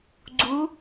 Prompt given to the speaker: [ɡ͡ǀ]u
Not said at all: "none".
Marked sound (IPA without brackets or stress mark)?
ɡ͡ǀ